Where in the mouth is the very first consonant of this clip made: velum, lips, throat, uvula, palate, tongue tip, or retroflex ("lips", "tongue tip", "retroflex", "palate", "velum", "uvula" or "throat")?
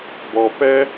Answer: lips